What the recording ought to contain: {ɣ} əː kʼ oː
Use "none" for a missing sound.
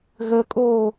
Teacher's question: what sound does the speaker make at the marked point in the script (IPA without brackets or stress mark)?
ɣ